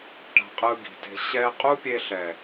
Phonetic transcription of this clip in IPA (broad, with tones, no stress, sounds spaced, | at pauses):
ʈ a̤˧ qʼ ɯ˧ ɡ i̤˨ t e̤˧ ɕ ɛ˦ qʼ u˦ pʲ e˧ ɬ ɛ˨